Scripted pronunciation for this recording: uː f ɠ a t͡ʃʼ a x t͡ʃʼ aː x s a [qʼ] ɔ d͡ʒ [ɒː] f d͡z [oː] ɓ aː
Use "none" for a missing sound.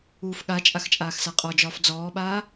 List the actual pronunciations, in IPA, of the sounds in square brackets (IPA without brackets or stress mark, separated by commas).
qʼ, ɒː, ɔː